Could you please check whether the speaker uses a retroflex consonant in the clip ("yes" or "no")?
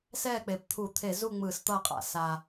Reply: no